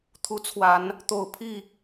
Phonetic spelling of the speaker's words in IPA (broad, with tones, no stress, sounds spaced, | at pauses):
t̪ʰ u˨˦ t͡sʰ w a˨˦ n | t̪ o˨˩ ʊ̯ pʰ i˥˨